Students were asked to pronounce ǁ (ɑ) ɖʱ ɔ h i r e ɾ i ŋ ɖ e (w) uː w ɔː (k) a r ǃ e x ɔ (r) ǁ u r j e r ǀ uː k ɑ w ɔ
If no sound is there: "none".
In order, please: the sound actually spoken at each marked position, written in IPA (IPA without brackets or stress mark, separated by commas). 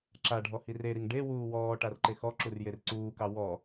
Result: a, w, ʈ, none